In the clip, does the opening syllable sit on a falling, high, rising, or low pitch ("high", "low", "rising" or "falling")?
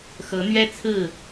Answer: rising